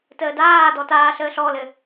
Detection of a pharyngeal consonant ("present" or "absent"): absent